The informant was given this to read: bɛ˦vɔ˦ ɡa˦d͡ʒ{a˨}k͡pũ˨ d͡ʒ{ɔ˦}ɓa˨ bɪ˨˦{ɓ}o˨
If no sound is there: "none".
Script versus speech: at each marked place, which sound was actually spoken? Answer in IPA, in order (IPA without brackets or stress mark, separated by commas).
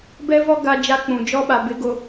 a˦, ɔ˦, ɡ